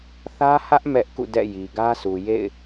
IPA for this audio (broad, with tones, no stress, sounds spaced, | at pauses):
θ ä˦ h ä˦ ʔ m ɛ˦ ʔ k ṵ˦˨ d ɛ̰˦˨ j i˨ ɡ ä˦ sʰ u˨ j ḛ˦˨ ɪ̯